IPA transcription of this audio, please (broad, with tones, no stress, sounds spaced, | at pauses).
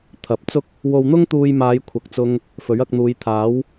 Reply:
t̪ʰ ɐ˨˥ p̚ t͡s ʊ˥ k̚ | w o˧ w n̪ ʊ˥ ŋ t̪ uː˧ j m aː˨˧ j kʷʰ ɐ˨ k̚ t͡s ʊ˧ ŋ | f ɵ˨˥ ɥ ɐ˧ k̚ n̪ uː˨˧ j t̪ʰ aː˨˥ w